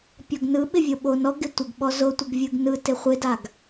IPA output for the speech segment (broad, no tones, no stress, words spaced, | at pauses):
pʲɔɡnɯɓɪ vʲoɓonɔɡɪ tʷɪɡɓɔ zotʷɯɡ vʲɯɡnɯtɪ χʷɪdaɡ